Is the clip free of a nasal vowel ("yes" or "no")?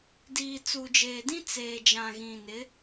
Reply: no